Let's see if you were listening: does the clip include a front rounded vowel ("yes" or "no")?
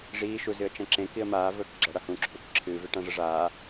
no